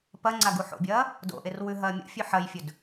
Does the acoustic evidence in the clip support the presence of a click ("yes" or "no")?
yes